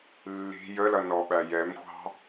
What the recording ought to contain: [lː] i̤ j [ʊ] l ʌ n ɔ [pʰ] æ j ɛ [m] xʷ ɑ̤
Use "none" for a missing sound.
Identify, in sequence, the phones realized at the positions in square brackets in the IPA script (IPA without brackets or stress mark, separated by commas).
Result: lː, ə, ɓ, m